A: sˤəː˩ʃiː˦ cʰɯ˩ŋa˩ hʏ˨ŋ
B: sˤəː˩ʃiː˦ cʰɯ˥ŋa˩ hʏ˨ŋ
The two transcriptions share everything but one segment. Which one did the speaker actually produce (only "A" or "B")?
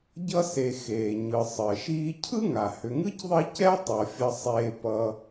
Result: B